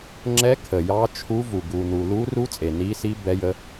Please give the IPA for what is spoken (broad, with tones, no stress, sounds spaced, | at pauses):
ŋ͡ǁ ɛ˦˥ kʰ ə˨ j ɑ˦˥ t͡ʃʰ u˦˥ v u˨ ɡ u˨ n u˨ l u˦˥ r u˦˥ t͡sʼ e˨ n i˦˥ s i˦˥ b ɛ˦˥ j ə˦˥